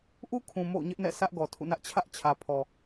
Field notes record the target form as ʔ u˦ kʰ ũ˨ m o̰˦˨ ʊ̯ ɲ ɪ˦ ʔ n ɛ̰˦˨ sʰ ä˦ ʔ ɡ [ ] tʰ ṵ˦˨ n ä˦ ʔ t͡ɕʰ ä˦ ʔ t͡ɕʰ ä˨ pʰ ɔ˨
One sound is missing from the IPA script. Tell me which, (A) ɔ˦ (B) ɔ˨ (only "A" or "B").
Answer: B